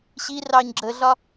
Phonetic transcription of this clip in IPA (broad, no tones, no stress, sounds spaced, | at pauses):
ɕ i r ɑ ɲ ɡ͡ǁ ə ɮ ɒ